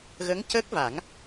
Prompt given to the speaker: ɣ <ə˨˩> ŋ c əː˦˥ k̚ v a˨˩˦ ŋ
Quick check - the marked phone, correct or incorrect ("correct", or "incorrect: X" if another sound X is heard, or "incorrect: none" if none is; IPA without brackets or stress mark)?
incorrect: ə˧˥